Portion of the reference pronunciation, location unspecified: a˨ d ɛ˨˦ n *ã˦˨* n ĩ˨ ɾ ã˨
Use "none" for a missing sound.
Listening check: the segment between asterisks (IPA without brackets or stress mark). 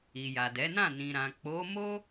ã˦˨